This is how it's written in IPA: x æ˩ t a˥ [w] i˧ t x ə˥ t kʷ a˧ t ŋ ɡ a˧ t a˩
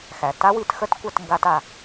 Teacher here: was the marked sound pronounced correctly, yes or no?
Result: yes